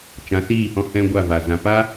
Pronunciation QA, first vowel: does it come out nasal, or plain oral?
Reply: nasal